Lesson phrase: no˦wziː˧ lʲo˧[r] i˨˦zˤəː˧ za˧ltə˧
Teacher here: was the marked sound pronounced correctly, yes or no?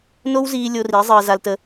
yes